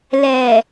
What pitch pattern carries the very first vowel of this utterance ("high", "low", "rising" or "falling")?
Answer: low